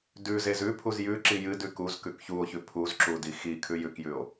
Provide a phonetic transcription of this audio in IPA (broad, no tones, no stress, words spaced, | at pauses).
dʉzez ʉpʰuz jʉ ǁijɨdʉ kuz kʉkçuo̯çʉ pʰuzǁu dixikʰʉ jʉkjʉo̯